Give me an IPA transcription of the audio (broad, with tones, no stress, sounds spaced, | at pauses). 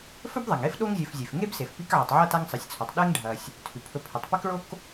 f ɵ˥ b ðˤ ɐ˩ ŋ e˥ f ɗ o˦ ŋ zʲ ɵ˨ f zʲ e˩ f ŋ e˥ b s e˩ f p i˦ k ʕ ɨ˩ tˤ ʕ ɐ˥ t a˦ ŋ sˤ ɨ˩ sʲ t͡sʰ o˩ tˤ ɗ e˥ ŋ ɖʱ ɐ˨ sʲ | tʰ ʉ˩ pʰ ɵ˨ pʰ e˩ tˤ p ɐ˥ k ɭ o˥ k